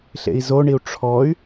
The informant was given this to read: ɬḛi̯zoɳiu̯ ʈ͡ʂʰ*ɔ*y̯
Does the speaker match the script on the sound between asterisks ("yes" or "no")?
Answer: yes